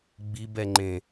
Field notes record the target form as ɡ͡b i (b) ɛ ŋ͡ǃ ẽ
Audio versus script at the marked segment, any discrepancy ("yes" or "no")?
no